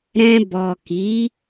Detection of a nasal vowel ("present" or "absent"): present